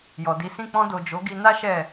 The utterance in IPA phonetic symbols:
j ɔ˨ d i˨˦ s ĩ˦˨ k͡p ɔ̃˧ d o˨ d͡ʒ o˨˦ ɡ i˧ n a˦ ʃ ɛ˦˨

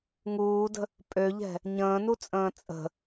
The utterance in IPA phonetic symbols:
ŋ uː d ə̤ | pʼ ø ʎ ɛ̤ | ɲ ə̃ː n u t͡sʼ ə̃ː t͡sʼ ə̤

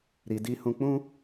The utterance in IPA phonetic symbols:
ɾ i˧ d i˦ h ũ˧ k͡p ũ˦

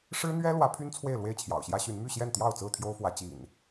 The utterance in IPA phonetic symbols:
ʂ ɻ̩˦ n̪ ɥ ɛ˦ l w ä˨˦ pʰ y˦ n t͡sʰ w e˥˨ ɪ̯ l w e˥˨ ɪ̯ t͡ɕʰ j ɑ̰˨˩ ʊ̯ ɕ j ä˦ ɕ y˨˦ n m y˥˨ ɕ j ɛ˥˨ n t̪ j ɑ˥˨ ʊ̯ t͡s ɹ̩˥˨ t̪ʰ j o˦ ʊ̯ f w ä˨˦ t͡ɕ ḭ˨˩ n

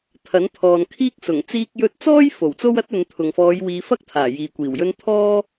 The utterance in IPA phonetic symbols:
t̪ʰ ɐ˨˥ n t̪ʰ ɔː˨ n kʰ iː˥ k̚ s ʊ˨˩ ŋ t͡s iː˧ k̚ j ɵ˧ t̚ t͡s ɔː˥ j f o˨˩ w t͡s o˥ w ɐ˥ t̚ ɵ˨˧ n t̪ʰ ʊ˨ ŋ f ɔː˨˧ j w iː˨˧ f ɐ˥ k̚ t̪ʰ aː˨˩ j iː˨ kʷ iː˨˩ w j ɵ˥ n t̪ʰ ɔː˥

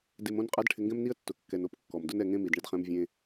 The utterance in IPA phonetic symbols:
d e˧ m õ˥ n qʼ a˥ d ʈʰ ɪ˧ ŋ ɡ ɛ̃˥ m n i˥ ə̯ tː ʊ˩ kː ɛ˩ n o˧ p kː ɔ˩ m d ʊ˥ n ɛ˧ ŋ ẽ˥ m i˩ d ɳ ɪ˧ d χ ɛ̃˧ m vʲ ẽ˧

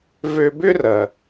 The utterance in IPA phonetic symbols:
v ø˧ b ʏ˥ r ɐ˩

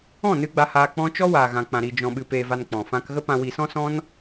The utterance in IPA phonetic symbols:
ɔ̃˦˨ n ɨ˧ ɡ͡b a˧ h aː˧ k͡p ɔ̃˦ t͡ʃ ɔ˦ w aː˨ ɣ ã˨ k͡p ã˨ ɾ i˨ d͡ʒ ɔ̃˨ ɓ ɨ˨ p eː˨ v a˨ n k͡p ɔ̃˨ f ã˦ k ɣ ə˧ p ã˨ w i˨ s ɔ̃˧ s ɔ̃˦ n

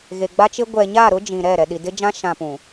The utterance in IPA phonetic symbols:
ɣ e˨ ɡ͡b a˦ t͡ʃ ɪ˦ ɡʷ ɛ˨ ɲ a˦˨ ɾ ʊ˦ d͡ʒ ĩ˨ ɾ ɛ˦˨ ɾ ɛ˨ ɗ i˨ d ɪ˦ d͡ʒ ã˦ ʃ ã˨ p ũ˨

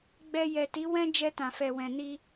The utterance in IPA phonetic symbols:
ɡ͡b ɛ˧ j ɛ˨ t i˨˦ w ɛ̃˦ d͡ʒ ɛ˧ t ã˨ f ɛ˨ w ɛ̃˨ n i˧

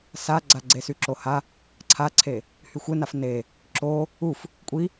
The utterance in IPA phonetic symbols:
s a ɡ͡ǀ a ɡ͡ǀ e s y ǁ o h a | ǀʰ a ǀʰ e | h y xʷ e n a f n e | ǁ o | u f | kʷʼ i

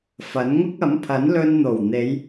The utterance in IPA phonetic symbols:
f ɐ˨˥ n ŋ ʊ˥ k̚ ɐ˨˥ m pʰ ɐ˨˥ n l ɵ˧ n n̪ o˨˩ w n̪ e˨˧ j

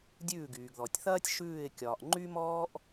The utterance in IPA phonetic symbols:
dʲ ʉː˧˩ ɡ yː˩ ɡ ð ɔ˩ tʲ θ ɐː˦ tʲ ʃ ʉː˧˩ ɪ̯ kʲ ɒː˩ ʔ ŋ͡ǃ y˦ m ɔː˦ ʔ

